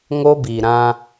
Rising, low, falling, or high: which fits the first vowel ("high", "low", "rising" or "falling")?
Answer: high